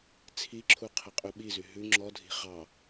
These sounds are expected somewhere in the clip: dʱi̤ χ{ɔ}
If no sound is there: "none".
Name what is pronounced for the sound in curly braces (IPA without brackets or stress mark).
ɑ